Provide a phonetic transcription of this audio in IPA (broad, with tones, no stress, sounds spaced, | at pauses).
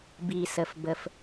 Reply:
b i˩ s ə˩ f b ə˩ f